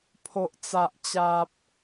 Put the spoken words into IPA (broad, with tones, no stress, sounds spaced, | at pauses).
pʰ o˦ ʔ t͡s a˦ ʔ t͡ɕ a˦ p̚